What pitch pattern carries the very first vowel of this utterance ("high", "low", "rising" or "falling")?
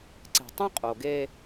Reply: low